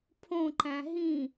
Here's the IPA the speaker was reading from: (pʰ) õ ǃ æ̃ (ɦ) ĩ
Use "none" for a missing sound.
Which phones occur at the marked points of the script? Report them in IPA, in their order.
pʰ, ɦ

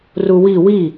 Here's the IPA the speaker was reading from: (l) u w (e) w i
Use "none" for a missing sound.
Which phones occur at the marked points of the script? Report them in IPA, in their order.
r, i

